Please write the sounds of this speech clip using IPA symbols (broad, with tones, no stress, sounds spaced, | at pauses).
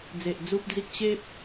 d͡z e˨ ʔ d͡z u˦ p̚ d͡z i˦ k̚ ɕ e˦ p̚